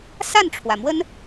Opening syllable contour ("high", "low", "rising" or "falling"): falling